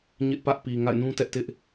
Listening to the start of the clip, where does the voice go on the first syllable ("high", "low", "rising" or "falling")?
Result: high